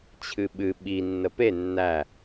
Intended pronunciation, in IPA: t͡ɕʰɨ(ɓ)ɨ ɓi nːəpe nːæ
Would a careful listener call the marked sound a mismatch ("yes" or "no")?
no